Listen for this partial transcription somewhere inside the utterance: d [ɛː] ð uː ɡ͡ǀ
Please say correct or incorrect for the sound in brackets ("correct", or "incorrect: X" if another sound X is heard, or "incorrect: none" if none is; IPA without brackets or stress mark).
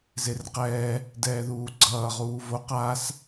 correct